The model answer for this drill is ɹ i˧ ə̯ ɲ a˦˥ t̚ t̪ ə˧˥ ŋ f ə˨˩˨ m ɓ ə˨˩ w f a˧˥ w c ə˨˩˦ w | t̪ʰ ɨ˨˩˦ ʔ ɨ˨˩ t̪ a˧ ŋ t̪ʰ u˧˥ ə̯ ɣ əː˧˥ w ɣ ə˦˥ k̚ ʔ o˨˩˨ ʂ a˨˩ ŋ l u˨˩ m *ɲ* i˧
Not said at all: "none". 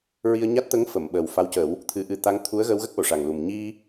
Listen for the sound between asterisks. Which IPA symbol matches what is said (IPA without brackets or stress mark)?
ɲ